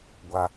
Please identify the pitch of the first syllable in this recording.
high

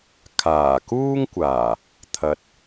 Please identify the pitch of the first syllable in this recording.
low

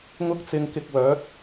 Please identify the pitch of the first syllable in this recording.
high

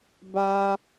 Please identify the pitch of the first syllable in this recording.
high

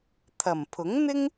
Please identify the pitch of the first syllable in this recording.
low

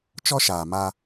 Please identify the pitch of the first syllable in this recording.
high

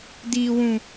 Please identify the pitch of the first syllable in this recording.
low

